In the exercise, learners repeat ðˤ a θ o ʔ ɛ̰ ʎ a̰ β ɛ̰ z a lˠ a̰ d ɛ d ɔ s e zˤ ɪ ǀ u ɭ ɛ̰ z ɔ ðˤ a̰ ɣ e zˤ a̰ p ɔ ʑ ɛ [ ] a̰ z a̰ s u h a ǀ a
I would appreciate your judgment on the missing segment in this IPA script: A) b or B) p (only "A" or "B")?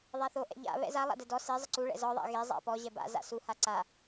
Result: A